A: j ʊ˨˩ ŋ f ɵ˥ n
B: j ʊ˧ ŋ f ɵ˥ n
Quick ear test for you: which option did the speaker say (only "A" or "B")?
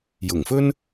A